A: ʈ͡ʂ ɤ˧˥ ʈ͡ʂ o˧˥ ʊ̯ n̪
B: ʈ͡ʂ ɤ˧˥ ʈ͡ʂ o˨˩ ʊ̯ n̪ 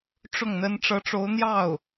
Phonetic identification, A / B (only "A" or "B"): A